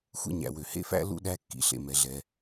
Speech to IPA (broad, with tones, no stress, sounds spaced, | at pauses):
xʷ ḛ˥ ɲ æ̰˩ w ø˩ h ḛ˥ f æ̰˥ l ṵ˥ ɗ æ˥ kː ḭ˩ ɬ ḛ˩ m ɛ˩ ɮ ɛ˩